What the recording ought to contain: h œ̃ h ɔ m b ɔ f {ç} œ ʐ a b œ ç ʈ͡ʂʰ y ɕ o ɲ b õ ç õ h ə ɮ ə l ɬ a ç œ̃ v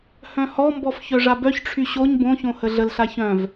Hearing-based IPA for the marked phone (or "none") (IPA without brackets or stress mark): ç